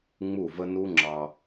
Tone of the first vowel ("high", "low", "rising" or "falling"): falling